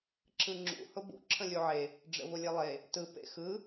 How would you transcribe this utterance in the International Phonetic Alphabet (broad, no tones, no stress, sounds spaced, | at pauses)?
ǁ ɯ ŋ͡ǁ ṵ h ʊ b ṵ ǁʰ ə̃ lʲ u ʕ e | ɖ͡ʐ ə̰ v ʊ lʲ e lˠ e | t ɯ p ḛ x ɯ